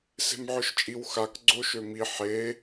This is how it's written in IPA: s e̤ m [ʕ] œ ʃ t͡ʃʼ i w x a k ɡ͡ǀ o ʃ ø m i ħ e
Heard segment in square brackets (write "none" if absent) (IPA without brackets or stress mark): ʕ